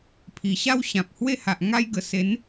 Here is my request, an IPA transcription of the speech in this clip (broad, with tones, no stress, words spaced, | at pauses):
pʰi˨˩ ɕa˥˧wɕã˨p̚hwe˥˧ha˨ʔ ŋa˧jɡə˨˩ se˨˦n